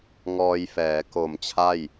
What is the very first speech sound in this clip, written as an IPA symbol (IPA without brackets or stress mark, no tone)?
ŋ